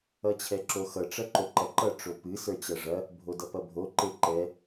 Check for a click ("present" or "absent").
present